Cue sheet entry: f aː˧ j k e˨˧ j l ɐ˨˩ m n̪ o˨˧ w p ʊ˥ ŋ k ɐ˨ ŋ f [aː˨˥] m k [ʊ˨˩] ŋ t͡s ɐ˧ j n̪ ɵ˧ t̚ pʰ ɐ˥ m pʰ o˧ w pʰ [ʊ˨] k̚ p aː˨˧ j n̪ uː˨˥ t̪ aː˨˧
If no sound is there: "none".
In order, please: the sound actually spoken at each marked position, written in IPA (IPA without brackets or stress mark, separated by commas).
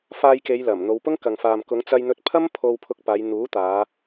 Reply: aː˨, ʊ˨˧, ʊ˧